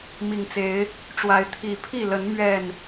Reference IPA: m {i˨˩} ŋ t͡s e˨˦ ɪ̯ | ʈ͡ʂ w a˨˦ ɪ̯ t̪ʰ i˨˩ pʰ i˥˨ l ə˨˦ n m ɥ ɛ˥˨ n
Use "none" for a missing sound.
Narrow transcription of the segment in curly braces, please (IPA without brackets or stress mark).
i˨˩